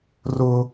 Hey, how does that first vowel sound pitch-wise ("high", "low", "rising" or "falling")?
high